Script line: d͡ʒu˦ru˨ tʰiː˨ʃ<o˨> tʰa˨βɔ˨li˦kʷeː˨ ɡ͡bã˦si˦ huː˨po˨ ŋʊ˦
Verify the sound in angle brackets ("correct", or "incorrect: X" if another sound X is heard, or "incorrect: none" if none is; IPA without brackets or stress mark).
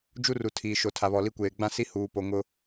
correct